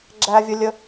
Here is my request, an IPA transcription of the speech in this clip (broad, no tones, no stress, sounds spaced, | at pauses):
ɡ͡ǁ æ vʲ ə lʲ ə